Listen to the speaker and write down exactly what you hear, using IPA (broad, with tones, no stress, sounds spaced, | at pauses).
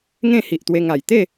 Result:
ŋ ẽ˥˧ h i˨ ʔ t̪ w e˧ ŋ a˨˩ j t̪ e˥˧